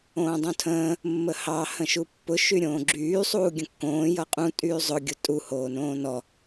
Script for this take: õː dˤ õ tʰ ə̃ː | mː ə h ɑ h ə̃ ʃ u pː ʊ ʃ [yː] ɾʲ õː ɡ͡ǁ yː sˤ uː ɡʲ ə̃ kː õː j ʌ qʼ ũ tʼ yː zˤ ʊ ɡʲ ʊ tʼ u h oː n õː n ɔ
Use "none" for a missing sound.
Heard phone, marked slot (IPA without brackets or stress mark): y